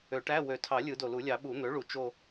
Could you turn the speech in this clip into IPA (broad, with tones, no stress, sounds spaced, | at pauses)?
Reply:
ø˨˩˦ ʈ æ˧˥˧ w ø˨˩ tʰ ɑ˨˩˦ lʲ ɯ˨˩˦ d o˨˩ l u˨˩˦ lʲ ɑ˨˩˦ ɓ u˨˩˦ n̪ ø˩˥ ɭ u˨˩˦ t͡ʃ o˦˨